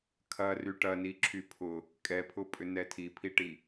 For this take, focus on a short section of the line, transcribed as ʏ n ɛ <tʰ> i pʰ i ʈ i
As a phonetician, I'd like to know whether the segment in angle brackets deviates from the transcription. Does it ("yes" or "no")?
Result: no